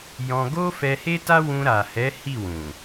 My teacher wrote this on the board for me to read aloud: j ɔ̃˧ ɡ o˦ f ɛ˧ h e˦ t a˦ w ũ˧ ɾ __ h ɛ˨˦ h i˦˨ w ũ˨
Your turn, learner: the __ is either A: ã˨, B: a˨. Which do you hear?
B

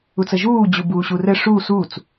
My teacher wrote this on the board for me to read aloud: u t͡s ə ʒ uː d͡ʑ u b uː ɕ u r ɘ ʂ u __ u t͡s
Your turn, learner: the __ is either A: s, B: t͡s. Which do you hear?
A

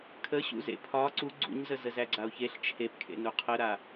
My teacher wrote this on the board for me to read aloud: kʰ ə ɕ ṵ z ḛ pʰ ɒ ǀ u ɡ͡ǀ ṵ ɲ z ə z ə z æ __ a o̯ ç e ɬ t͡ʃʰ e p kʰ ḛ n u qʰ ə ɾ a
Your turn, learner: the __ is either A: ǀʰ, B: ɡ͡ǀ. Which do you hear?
B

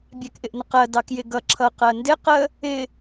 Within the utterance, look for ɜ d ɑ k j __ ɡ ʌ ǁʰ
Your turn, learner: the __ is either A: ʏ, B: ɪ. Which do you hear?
B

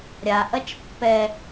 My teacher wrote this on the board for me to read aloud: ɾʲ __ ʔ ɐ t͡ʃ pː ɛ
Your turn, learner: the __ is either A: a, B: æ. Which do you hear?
A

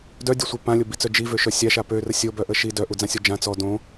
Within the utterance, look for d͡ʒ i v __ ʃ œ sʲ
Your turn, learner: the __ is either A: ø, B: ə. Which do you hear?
A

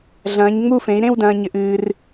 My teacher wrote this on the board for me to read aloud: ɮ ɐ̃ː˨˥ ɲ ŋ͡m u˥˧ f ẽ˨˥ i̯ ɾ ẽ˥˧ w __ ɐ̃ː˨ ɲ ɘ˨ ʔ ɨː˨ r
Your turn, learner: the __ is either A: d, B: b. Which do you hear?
A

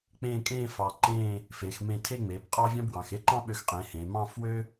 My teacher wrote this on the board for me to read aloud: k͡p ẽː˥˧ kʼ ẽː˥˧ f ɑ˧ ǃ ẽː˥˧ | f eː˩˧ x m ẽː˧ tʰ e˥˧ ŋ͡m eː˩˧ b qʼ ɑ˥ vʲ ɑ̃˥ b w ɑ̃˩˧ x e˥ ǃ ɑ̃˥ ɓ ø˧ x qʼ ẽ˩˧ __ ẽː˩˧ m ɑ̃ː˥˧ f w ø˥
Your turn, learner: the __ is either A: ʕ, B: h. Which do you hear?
B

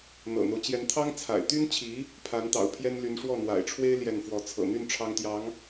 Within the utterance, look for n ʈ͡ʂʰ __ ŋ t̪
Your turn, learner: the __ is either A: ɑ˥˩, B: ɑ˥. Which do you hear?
B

